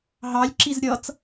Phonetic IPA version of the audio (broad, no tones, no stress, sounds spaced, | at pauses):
ɦ ɑ lʲ ǁ i z ɾʲ ʌ t͡s